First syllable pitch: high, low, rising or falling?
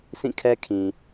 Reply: falling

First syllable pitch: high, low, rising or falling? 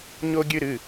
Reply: high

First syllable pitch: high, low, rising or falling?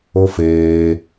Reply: high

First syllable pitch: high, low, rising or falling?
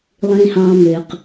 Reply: low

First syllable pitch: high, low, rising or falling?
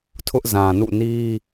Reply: high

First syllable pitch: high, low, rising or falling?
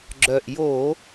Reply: low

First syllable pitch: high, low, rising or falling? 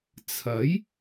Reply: rising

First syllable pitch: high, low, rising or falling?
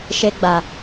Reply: high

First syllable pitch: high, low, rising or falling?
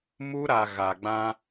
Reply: high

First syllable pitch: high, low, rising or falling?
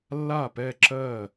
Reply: falling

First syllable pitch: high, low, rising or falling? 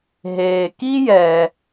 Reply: low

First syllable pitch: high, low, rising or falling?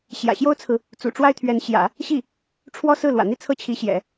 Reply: low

